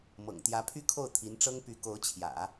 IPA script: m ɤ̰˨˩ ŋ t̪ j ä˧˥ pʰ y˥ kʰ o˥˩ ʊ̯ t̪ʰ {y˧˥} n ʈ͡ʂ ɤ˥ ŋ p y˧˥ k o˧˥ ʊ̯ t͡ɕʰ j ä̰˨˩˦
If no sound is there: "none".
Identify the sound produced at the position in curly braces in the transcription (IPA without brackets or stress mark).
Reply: i˧˥